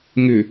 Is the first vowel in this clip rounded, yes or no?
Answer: yes